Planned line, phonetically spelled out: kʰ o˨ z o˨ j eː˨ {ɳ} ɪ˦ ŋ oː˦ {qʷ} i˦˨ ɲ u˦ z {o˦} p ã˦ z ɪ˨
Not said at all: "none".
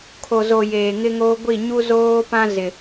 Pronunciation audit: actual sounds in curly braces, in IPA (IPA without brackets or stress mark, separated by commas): ŋ, ɡʷ, oː˦